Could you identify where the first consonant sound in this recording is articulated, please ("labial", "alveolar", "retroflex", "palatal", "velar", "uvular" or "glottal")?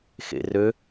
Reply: velar